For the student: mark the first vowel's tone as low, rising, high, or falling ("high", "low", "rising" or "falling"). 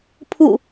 falling